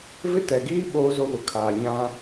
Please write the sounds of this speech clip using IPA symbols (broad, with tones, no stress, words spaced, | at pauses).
vɪ˦tɛ˨ɡiː˦ ɓoː˦zo˦βʊ˨kʰaː˨ ɲã˦